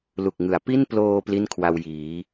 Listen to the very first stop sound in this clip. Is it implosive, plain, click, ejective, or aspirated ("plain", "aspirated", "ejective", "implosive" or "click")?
plain